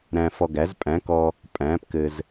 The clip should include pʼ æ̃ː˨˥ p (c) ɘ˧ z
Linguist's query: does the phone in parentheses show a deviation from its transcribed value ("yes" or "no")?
yes